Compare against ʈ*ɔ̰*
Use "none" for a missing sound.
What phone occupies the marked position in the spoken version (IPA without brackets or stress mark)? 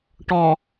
ɔ